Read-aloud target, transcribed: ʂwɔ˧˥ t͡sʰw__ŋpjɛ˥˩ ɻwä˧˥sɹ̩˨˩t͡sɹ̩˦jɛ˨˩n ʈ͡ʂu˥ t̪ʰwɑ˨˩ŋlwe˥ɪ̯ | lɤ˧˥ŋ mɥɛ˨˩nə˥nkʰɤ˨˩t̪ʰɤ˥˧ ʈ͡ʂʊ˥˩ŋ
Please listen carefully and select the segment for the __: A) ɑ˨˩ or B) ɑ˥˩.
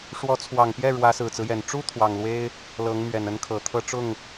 A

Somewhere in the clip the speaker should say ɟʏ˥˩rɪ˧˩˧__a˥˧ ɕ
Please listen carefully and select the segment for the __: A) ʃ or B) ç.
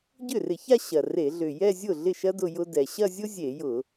B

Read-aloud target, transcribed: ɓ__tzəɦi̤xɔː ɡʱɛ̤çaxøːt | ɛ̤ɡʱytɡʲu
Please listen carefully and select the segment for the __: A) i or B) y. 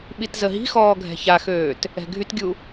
A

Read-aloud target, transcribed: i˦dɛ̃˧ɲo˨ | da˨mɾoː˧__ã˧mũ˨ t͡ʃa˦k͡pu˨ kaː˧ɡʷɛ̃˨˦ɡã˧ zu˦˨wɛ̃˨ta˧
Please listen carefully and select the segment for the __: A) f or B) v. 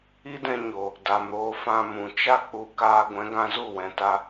A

